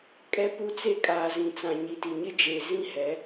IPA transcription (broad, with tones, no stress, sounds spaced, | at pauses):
kʼ ɛ˦ p u˦ t͡s e˦˨ kʼ aː˨ z ĩ˨ t͡s ã˨ ɲ i˨ t i˨ ɲ ɪ˦ d͡ʒ eː˨ z ĩ˦ h ɛ˨˦